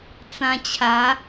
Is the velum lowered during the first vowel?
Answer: yes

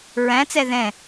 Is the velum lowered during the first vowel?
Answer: yes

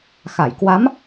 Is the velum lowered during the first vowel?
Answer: no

